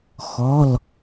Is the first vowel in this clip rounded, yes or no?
yes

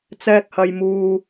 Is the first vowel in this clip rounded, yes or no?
no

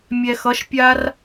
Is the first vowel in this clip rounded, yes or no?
no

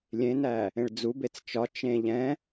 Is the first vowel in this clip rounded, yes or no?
no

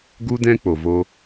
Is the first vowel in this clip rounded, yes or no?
yes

